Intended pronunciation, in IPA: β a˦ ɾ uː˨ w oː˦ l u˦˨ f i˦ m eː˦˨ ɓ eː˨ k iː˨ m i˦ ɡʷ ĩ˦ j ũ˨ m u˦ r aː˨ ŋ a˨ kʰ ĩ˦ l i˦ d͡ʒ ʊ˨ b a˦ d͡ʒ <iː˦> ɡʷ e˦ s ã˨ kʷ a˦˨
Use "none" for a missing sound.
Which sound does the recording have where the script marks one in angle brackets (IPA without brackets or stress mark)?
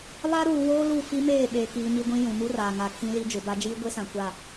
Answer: iː˦